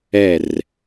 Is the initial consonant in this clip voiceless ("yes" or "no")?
no